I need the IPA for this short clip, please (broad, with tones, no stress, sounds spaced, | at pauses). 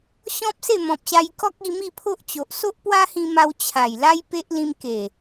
ɕ ɔ̃˦ p̚ s e˥˧ m ɔ̃˨ p̚ ɕ a˧ j k ɔ˦ k̚ i˧ m i˥˧ pʰ o˦ ʔ t͡ɕ o˨ ʔ s o˦ ʔ p w a˦ h ĩ˧ m a˧ w t͡ɕʰ a˨˩ j l a˦ j p e˦ ʔ l ĩ˧ m k e˨˩